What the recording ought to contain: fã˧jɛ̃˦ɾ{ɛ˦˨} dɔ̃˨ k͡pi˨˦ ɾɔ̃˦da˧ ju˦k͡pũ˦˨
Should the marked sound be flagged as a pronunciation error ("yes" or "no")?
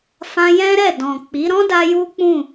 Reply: no